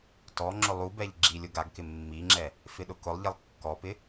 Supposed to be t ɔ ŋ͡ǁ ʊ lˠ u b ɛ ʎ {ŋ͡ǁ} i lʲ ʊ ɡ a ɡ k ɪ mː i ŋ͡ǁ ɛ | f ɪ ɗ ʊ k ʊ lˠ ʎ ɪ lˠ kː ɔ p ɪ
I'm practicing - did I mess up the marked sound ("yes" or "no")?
yes